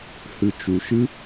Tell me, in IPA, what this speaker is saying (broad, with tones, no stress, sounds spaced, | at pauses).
h ɨ˨ t͡ʃ u˨ ʃ ɨ˦